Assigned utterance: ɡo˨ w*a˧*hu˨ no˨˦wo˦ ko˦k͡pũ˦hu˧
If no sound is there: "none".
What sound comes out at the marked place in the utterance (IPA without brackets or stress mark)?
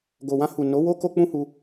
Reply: ã˧